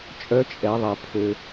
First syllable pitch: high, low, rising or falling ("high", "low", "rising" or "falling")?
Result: rising